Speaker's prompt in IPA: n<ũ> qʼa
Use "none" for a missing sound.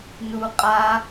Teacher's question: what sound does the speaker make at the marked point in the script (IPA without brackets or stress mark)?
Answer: u